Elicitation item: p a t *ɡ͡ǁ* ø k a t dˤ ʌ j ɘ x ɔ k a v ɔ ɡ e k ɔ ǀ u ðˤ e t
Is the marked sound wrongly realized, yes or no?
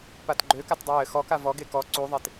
yes